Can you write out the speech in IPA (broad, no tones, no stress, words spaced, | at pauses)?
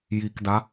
jikda